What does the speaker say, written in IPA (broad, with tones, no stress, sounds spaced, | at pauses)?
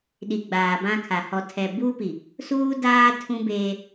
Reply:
ɗ i˨ ɡ͡b aː˨ b ã˦ kʰ a˨ h ɔ˨ tʰ ɛ˨ b uː˦ p i˨ | s uː˦ d aː˦ tʰ ũ˦ b eː˦